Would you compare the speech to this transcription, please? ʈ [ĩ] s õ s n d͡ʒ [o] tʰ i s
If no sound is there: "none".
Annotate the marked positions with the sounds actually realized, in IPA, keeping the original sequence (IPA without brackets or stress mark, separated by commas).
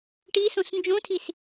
i, õ